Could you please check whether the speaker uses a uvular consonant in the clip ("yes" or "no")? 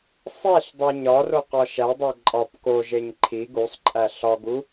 yes